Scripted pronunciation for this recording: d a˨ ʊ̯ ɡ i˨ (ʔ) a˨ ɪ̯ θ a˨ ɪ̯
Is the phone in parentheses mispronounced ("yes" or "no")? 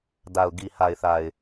yes